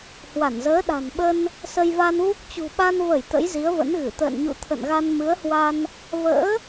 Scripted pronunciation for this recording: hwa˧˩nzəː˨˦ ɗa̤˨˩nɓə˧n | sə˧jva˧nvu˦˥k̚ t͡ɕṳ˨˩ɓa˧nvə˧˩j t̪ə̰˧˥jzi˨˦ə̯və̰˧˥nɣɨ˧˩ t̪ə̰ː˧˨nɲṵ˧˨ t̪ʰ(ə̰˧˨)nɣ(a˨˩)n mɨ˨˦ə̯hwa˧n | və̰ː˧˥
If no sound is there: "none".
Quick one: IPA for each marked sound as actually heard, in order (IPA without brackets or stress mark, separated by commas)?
ə̰˧˨, a˧